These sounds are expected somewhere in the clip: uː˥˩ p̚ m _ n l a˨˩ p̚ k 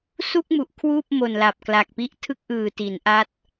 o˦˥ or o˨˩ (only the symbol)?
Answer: o˨˩